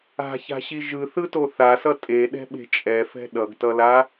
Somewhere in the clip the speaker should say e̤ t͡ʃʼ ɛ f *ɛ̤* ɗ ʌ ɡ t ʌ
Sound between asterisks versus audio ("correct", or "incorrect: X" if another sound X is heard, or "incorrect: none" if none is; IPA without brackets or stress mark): correct